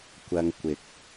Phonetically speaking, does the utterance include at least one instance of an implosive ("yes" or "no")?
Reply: no